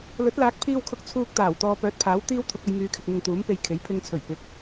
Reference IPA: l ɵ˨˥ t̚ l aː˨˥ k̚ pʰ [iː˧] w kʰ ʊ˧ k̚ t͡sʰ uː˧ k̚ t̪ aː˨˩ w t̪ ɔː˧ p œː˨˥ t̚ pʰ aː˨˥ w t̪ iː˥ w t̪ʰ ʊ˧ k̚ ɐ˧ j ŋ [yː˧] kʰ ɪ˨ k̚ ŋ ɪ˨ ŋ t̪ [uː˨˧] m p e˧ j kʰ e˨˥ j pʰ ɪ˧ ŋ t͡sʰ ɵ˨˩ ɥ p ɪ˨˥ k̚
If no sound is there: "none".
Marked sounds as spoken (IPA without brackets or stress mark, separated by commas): iː˧, yː˨˧, uː˨˥